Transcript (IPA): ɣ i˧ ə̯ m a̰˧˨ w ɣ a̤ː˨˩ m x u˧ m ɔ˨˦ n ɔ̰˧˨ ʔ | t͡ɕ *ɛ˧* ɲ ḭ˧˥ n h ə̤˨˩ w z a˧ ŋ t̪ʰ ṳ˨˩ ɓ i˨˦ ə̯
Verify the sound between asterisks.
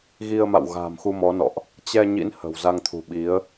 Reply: correct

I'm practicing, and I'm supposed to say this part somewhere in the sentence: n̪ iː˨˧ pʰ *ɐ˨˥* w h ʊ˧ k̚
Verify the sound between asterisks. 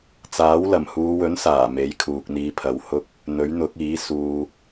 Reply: correct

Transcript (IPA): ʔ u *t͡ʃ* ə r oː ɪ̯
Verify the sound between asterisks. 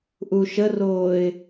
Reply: incorrect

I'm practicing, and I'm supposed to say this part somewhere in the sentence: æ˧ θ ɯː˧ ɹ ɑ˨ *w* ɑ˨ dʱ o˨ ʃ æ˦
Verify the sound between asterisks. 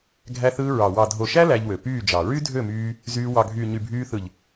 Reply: correct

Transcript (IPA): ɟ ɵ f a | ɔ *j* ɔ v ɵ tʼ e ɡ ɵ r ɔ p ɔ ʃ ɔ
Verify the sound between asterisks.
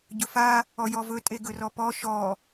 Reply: correct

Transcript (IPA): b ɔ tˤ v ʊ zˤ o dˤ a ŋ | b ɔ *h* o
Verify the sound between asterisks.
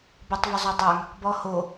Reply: correct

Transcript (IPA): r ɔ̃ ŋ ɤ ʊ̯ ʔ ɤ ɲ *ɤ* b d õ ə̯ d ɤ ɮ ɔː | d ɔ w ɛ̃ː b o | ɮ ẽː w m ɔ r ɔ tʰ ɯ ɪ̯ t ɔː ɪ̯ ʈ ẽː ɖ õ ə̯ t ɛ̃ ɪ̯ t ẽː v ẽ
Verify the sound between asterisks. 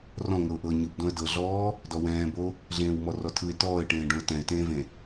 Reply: incorrect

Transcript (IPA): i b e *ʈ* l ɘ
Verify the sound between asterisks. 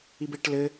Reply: correct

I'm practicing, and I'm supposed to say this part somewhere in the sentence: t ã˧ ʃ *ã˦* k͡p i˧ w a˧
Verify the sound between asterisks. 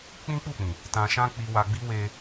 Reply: correct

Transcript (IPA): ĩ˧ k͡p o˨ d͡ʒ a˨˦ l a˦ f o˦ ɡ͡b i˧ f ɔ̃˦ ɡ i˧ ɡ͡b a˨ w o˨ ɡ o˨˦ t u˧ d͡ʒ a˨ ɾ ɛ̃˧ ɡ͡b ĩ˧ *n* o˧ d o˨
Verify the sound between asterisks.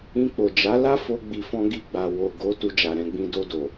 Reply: incorrect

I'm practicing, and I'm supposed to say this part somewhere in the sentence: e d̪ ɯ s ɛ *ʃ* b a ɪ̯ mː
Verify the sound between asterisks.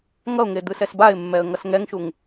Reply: incorrect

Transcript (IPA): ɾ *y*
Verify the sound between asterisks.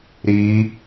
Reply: incorrect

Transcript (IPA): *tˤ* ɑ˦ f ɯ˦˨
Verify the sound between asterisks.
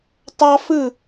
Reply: correct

